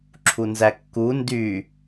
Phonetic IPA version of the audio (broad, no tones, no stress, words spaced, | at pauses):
ǁʰunzækːu ndy